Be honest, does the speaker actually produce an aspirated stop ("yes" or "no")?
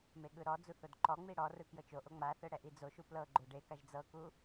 no